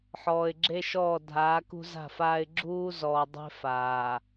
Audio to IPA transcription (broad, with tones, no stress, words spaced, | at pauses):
ħɔː˨ɪ̯ɡ͡ǁe˦ʃɔː˦˨ dʱaː˨˦kṳ˦za̤˦˨faː˦ɪ̯ ɡ͡ǁuː˦zɔː˨dˤe̤˦ faː˨